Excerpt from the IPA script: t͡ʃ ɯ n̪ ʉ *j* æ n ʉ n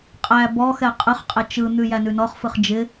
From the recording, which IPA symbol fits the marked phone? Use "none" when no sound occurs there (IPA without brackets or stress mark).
j